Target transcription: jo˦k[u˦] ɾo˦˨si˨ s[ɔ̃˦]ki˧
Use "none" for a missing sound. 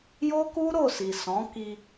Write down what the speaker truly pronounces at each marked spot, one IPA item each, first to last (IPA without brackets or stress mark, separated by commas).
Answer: u˦, ɔ̃˨˦